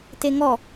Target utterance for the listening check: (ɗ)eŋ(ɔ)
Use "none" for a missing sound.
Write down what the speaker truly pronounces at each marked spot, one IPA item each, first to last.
t, ɔ

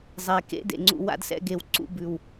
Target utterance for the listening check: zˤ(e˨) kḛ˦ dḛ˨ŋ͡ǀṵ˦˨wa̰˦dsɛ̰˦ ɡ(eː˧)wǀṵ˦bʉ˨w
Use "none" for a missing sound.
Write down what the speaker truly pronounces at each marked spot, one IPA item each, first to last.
e˨, e˧

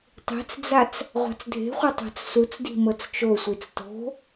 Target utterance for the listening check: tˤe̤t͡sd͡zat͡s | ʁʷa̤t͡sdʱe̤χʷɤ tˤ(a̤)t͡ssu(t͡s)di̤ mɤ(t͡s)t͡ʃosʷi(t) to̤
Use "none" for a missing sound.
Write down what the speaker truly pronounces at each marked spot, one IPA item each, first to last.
a̤, t͡s, t͡s, t͡s

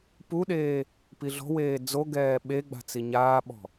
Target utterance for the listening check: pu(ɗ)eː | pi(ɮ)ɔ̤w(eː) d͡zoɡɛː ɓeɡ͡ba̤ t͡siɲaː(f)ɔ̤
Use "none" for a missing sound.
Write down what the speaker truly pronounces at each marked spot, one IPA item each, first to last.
ɗ, ɮ, eː, ɓ

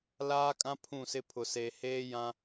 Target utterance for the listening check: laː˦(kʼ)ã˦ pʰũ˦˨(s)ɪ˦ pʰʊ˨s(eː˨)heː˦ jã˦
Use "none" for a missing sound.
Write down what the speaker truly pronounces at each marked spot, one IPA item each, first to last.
kʼ, s, eː˨

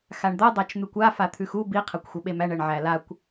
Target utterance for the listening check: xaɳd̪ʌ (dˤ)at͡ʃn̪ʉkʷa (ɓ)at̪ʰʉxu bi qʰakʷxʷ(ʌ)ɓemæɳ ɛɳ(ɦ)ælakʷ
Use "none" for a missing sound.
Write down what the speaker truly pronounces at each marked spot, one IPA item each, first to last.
dˤ, f, ʌ, ʕ

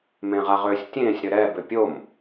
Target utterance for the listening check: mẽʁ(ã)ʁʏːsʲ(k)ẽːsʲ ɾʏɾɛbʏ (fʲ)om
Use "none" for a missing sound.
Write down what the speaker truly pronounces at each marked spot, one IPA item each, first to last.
a, tʲ, pʲ

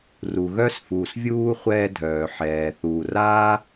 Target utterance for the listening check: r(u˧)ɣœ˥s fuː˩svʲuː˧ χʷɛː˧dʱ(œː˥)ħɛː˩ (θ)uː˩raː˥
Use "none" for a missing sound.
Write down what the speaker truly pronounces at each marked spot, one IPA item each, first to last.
u˩, œː˩, θ

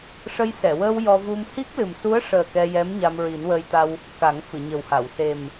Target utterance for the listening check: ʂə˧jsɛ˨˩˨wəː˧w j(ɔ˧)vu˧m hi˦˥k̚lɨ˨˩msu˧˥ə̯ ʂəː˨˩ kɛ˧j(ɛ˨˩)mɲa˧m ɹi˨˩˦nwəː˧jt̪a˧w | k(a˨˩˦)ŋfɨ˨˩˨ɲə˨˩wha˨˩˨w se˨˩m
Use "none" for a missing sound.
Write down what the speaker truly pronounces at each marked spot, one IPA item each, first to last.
ɔ˧, ɛ˧˥, a˨˩˦

